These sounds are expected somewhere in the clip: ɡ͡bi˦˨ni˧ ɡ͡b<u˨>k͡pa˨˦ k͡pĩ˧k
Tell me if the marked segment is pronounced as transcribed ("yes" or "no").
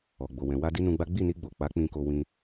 no